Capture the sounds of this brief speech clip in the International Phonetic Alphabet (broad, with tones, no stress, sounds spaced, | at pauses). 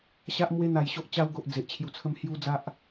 ɕ a˦ ʔ m w e˦ n̪ a˧ j ɕ o˦ ʔ t͡ɕ a˧ w ɡ o˨ ʔ d͡z e˨ ʔ t͡ɕʰ j u˧ t͡sʰ ə˦ m h j u˦ d͡z a˦ ʔ